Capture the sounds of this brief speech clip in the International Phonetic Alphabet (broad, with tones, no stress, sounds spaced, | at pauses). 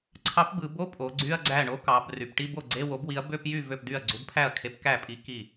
ǀʰ ɑ˨˥ p b ɯ˩˧ b o˧˥˧ pʼ o˩˧ ɡ͡ǀ y˧˥˧ ɐ̯ ɡ͡ǀ æ˥˩ ɳ o˨˥ k ɑ˩˧ b r y˩˧ p ʈ i˧˥˧ b o˥˩ ɡ͡ǀ e˧˥˧ w o˨˥ b w i˨˥ ɐ̯ b ø˧˥˧ p j y˥˩ v ø˥˩ p d y˥˩ ɐ̯ ɡ͡ǀ u˨˥ b pʰ æ˥˩ ɐ̯ kʰ e˨˥ p k æ˥˩ pʼ i˨˥ k i˥˩